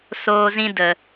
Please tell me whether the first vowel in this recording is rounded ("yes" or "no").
yes